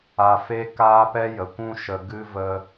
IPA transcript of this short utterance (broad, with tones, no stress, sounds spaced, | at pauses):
a˧ f e˦ k aː˦ p ɛ˦ j ə˨ kʷ ũ˦ ʃ ə˨ ɡ ɨ˦ v ə˦